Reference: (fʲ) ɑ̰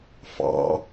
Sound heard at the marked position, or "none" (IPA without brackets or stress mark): f